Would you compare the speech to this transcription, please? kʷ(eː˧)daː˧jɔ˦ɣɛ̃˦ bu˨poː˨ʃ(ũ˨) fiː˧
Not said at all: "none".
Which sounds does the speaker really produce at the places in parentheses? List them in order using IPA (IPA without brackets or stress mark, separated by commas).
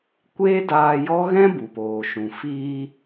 eː˦, ũ˨